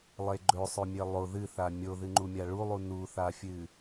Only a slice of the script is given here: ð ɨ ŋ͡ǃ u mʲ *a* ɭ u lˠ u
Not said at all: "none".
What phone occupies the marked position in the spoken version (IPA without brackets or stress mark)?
a